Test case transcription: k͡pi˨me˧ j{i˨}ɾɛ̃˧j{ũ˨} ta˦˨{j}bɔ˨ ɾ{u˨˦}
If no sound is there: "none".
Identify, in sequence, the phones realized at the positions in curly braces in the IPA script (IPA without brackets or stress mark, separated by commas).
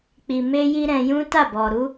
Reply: i˦, ũ˦, none, u˨˦